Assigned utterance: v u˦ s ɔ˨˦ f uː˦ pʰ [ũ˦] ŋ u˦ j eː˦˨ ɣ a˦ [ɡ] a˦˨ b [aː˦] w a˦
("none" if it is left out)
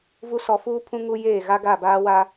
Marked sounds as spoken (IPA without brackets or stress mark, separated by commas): ũ˦, ɡ, aː˦